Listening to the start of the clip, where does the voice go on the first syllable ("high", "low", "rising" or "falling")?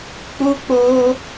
high